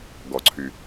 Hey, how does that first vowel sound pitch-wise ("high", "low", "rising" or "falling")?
low